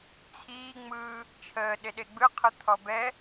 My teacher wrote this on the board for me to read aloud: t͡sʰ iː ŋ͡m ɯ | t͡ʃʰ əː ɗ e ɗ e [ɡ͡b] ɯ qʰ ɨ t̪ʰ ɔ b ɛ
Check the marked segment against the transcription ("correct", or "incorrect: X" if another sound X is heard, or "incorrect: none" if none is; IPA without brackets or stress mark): correct